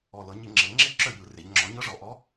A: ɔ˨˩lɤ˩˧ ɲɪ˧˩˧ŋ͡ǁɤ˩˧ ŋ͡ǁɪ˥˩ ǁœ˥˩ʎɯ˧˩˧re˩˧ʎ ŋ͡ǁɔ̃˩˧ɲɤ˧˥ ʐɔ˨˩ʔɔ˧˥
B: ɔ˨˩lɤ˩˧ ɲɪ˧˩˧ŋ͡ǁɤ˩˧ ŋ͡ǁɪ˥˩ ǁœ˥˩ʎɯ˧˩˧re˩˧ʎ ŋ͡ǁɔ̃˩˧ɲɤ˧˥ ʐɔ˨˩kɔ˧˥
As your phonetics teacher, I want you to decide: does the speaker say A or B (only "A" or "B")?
A